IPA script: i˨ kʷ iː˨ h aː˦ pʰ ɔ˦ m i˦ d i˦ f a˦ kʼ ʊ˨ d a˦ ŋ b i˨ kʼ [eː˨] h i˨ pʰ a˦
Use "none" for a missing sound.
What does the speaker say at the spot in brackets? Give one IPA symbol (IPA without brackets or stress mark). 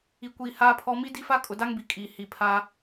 iː˨